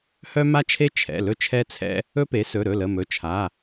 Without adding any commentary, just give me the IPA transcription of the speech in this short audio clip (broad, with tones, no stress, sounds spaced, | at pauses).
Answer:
h œ˦ m a˦ t͡ʃʰ e˦ t͡ʃʰ ɛ̰˩˧˩ l ɵ˦ t͡ʃʰ ɛ˦ t͡sʰ ɛ̰˦ | ɵ˦ p e˩˥ s ɵ˩˧˩ ɾ ɵ˩˧˩ l ə˩˧˩ m ɵ˩˧˩ t͡ʃʰ a˩˧˩